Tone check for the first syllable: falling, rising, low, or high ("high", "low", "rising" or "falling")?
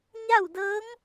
falling